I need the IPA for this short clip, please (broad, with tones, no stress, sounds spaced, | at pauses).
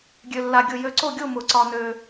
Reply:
ɡʲ ø˧ lː a˧ ɡʲ ʊ˥˨ j ø˧ ǀ o˥˨ ɡʲ o˥˨ m ʊ˨˩˦ ǀ ɒ˧ n ø˧